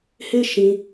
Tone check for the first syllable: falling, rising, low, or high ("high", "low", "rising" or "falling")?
high